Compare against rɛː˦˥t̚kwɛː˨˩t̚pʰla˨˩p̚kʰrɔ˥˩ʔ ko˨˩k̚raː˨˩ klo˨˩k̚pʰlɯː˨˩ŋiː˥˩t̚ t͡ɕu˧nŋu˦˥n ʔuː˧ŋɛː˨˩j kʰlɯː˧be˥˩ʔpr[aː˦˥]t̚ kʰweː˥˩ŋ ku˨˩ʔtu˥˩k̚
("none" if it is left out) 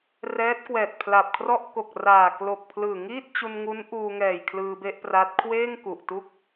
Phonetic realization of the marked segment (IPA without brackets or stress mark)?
a˦˥